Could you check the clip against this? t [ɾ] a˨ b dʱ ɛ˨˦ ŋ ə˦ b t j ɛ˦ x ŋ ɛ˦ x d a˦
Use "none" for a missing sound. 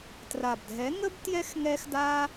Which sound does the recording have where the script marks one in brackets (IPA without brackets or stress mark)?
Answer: r